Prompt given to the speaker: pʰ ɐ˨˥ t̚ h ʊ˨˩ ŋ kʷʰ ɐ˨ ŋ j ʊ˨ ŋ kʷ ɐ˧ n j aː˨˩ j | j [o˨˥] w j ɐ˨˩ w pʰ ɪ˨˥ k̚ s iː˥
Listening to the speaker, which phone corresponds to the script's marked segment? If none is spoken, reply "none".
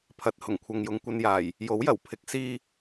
o˨˥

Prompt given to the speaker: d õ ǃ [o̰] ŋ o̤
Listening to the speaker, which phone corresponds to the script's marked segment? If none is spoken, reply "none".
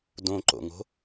o̰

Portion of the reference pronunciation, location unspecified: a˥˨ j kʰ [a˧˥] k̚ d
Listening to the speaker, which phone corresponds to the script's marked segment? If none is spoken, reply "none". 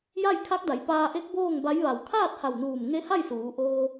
a˧˥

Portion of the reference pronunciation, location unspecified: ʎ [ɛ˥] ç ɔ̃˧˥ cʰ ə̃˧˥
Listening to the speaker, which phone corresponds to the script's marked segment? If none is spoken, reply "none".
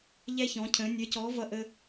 ɛ˥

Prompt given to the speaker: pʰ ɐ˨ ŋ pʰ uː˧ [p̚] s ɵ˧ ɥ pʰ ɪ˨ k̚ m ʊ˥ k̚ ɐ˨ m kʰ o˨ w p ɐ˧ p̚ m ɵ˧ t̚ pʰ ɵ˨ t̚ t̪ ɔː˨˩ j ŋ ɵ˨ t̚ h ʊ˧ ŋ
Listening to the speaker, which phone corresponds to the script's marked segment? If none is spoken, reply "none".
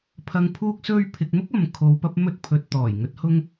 k̚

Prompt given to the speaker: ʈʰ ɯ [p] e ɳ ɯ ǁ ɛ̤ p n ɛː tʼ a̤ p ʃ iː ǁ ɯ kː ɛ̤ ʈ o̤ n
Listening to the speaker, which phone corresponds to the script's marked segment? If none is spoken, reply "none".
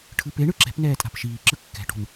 p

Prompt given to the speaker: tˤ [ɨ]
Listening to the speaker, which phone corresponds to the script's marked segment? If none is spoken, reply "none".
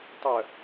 ə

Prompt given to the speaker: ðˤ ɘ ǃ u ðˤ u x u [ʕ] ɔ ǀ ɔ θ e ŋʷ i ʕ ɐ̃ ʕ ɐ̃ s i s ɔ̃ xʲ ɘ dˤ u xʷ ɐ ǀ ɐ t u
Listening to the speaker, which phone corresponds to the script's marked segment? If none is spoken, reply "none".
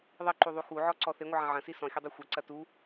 ʕ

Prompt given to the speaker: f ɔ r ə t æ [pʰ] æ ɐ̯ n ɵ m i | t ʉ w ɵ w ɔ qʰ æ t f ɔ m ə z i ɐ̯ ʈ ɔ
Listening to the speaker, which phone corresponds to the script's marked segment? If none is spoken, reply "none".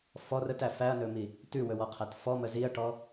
f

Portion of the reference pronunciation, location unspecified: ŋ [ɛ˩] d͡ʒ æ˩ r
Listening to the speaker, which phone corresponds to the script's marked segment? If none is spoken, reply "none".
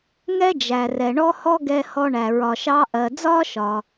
ɛ˥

